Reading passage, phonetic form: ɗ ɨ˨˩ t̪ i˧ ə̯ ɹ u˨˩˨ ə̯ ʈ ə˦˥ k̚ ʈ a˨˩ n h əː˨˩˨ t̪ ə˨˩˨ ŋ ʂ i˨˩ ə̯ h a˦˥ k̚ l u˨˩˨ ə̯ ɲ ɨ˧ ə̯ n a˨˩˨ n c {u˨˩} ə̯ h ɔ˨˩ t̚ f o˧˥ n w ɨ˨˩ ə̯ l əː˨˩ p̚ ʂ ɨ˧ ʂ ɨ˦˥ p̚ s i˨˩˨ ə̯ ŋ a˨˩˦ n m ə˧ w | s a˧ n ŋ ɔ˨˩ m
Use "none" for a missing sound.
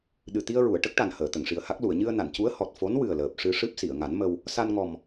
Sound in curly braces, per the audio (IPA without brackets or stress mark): u˧˥